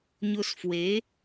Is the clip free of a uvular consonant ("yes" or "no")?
yes